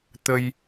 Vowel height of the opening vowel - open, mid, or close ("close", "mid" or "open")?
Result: mid